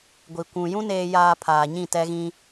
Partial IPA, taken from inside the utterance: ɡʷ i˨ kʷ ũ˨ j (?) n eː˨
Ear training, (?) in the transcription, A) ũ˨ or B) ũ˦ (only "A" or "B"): B